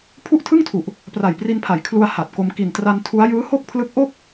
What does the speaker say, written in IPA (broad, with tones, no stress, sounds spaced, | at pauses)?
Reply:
pʰ u˥˩ ʔ tʰ ɯ˥˩ ŋ tʰ u˨˩ ʔ | p r a˨˩ j p r i˧ n pʰ a˩˦ j kʰ l u˧ a̯ h a˨˩ t̚ k o˧ m k i˨˩ n t r a˧ n tʰ u˦˥ a̯ j ɯː˦˥ h o˥˩ k̚ pʰ l ɯ˦˥ k̚ ʔ o˥˩ k̚